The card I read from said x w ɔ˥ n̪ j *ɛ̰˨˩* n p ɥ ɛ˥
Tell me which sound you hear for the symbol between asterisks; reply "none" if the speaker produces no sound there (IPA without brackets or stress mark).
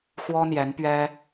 ɛ˧˥